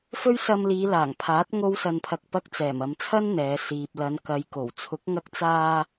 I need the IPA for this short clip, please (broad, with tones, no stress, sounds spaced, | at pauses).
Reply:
f ɵ˥ ɥ s ɐ˧ m l iː˨˧ l aː˨˩ ŋ pʰ aː˨˥ t̚ ŋ o˥ w s ɐ˧ n pʰ ɐ˧ k̚ p ɐ˧ k̚ t͡s ɛː˨˩ m ɐ˨ m t͡sʰ ɐ˥ n n̪ ɛː˨˧ s iː˨ p̚ l ɐ˨˧ n k ɐ˨˧ j k o˨˩ w t͡sʰ ʊ˨˥ k̚ ŋ ɐ˧ k̚ t͡s aː˧